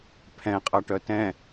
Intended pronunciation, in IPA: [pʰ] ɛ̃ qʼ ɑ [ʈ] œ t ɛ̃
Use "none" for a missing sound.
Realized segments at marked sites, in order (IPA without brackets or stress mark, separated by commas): pʰ, ʈ